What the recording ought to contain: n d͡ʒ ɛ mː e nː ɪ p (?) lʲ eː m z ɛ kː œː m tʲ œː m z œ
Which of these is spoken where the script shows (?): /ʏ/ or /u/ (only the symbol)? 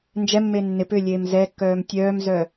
ʏ